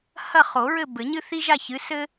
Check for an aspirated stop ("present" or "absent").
absent